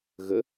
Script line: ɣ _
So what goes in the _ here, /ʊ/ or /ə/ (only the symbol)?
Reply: ə